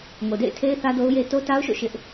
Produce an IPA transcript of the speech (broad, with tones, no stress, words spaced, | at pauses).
ŋo˨dḛ˦˨ɪ̯tʰe˦ɪ̯ θä˦do˦ʊ̯je˦ to˦ta˦ʊ̯ʃo̰˦˨ ʃɪ˦ʔ